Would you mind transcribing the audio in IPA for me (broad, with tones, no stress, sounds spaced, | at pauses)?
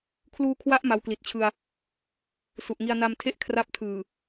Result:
kʰ l uː˧ kʰ w a˦˥ ʔ m a˧ w k l i˨˩ t̚ t͡ɕʰ ɯ˧ a̯ | s u˨˩ ʔ ŋ i˧ a̯ n a˧ m tʰ e˥˩ ʔ kʰ r a˦˥ p̚ tʰ ɯː˨˩